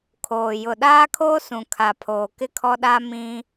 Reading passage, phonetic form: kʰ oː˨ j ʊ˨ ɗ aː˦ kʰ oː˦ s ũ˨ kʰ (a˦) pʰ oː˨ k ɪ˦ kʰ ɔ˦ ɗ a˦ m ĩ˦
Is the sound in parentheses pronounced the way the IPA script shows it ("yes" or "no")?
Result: no